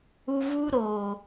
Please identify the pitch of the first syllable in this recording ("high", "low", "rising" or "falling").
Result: high